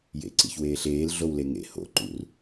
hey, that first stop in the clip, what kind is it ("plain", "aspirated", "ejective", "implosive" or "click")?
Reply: click